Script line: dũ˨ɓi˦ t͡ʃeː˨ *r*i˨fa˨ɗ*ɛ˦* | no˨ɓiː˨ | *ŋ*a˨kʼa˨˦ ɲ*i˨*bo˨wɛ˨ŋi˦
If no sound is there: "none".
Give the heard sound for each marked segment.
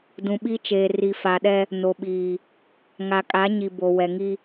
r, ɛ˦, ŋ, i˨

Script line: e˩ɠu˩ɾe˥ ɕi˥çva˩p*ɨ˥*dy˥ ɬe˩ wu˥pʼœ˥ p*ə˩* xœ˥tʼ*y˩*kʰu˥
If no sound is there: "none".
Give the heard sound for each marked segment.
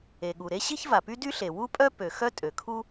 y˥, ø˩, ø˩

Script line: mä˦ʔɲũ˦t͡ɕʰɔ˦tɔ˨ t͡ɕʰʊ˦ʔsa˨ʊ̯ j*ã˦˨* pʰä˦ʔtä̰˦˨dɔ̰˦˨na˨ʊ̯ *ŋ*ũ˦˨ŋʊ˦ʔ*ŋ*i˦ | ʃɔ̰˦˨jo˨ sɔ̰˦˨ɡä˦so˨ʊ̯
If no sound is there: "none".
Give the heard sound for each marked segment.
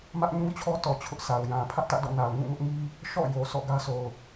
ã˨, ŋ, ŋ

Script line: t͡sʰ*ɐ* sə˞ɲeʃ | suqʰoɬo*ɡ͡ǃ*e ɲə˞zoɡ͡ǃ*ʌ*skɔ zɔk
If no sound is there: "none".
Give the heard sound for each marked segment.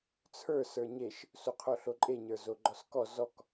ə˞, ǃʼ, ɔ

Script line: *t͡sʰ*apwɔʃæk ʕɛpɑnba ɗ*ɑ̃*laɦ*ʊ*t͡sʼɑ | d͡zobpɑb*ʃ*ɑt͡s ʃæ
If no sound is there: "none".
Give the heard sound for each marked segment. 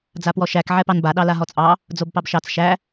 d͡z, ɑ, ɔ, ʃ

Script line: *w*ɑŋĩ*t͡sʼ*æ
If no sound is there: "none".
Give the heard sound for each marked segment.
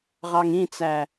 ʁ, t͡s

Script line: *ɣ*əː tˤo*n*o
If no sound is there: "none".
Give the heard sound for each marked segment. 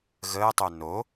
ɣ, n

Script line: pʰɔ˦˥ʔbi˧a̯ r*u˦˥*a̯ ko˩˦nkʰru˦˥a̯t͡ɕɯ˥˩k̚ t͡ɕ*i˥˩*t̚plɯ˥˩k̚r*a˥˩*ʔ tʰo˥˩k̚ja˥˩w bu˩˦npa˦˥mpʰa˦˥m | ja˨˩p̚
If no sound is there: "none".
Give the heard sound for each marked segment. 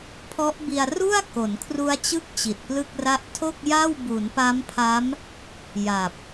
u˥˩, i˨˩, a˥˩

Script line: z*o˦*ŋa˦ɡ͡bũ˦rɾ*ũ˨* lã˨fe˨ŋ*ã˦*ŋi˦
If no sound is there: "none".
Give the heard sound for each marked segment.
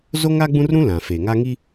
o˦, ũ˦, a˦

